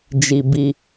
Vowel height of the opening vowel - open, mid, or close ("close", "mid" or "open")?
close